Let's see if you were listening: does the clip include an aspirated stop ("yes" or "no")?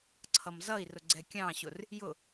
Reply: yes